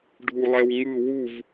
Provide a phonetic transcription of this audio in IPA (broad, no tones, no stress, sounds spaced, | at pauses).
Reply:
ɖʱ u lˠ ɛ w ŋ ɯ w u v